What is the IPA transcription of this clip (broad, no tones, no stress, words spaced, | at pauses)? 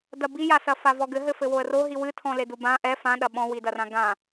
dɐbijasɐ favɔɡɘ ɦɘfɘwoə̯ro ɦiwɨtʰɔ̃le dubã ʔɛ fãɗɐ ɓɔ̃widɐrã ɡã